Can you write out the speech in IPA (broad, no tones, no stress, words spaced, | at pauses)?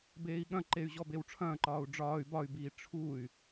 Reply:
beːi̯ɠɐ̃ǃey̯ ʑɔbewʈ͡ʂʰɐ̃ːǃɒːu̯ ɖ͡ʐɒːy̯ bɒy̯biː ʈ͡ʂʰuy̯